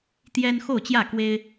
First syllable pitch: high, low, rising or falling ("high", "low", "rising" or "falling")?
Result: high